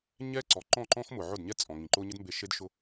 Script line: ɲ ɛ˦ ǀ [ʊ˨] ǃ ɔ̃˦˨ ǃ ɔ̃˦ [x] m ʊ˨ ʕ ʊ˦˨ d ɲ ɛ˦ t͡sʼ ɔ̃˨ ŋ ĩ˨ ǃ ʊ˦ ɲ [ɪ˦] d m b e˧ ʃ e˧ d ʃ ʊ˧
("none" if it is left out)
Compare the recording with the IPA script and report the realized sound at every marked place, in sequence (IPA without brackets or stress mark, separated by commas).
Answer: ɔ˨, x, ɪ˦